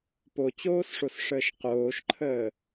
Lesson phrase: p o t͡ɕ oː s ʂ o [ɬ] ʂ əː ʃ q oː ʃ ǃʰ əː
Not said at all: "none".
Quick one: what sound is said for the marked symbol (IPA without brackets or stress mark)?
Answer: s